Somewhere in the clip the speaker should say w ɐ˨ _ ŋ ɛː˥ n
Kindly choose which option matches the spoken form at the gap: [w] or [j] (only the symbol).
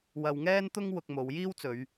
w